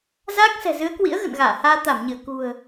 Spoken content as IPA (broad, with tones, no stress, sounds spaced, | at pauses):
z aː˦˥ k̚ s ɛ̤˨˩ z ɨ˨˦ ə̯ k w ḭ˧˥ ə̯ ɣ ə̰˧˨ n ɣ aː˧˩ h aː˧ t̪ a˧˩ m ɲ ɨ˧˩ ə̯ k ṳ˨˩ ə̯